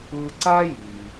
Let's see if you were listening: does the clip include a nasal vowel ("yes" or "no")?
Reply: no